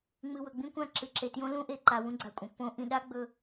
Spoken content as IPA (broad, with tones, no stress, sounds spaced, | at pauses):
ŋ͡m ɨ˨ w ɵ˨ ɡ͡b ĩ˦ kʷ ã˦˨ ǁ ɨ˨ ǁ e˨ t j õ˦ l ũ˦ ʔ e˨ ǃ a˨ w ũ˦ ɡ͡ǀ a˨ kʷʼ ɐ̃˨ pː õ˦ ʔ ĩ˨ ɗ a˦ ɡ͡b ɵ˦